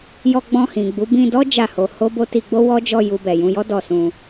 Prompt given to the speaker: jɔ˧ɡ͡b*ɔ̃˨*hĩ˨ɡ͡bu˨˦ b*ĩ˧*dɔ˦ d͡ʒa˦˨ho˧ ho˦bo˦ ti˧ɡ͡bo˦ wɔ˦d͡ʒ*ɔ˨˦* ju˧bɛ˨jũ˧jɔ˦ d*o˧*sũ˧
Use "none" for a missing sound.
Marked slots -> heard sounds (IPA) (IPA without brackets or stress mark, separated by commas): ɔ̃˧, ĩ˧, ɔ˦˨, ɔ˧